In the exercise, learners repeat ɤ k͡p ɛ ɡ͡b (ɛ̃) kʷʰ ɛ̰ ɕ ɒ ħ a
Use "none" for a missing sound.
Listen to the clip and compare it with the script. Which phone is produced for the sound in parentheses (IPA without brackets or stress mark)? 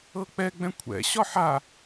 ɛ̃